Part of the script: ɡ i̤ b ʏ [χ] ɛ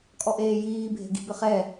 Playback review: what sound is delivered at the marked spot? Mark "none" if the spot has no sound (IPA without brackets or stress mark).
χ